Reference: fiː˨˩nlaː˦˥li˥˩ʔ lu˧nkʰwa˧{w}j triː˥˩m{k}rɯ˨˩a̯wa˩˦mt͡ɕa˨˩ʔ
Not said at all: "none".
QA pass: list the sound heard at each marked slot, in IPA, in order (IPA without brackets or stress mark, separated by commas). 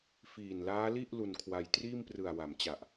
none, p